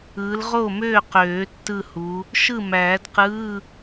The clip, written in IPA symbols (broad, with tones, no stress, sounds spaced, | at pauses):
ɯː˨˦ l ʁ o˥˩ m øː˥˩ q øː˨˩˦ tː ɯ˥˩ h u˨˦ | ʃ ɯ˥˩ m æː˨˩˦ d q ɯː˧˥˧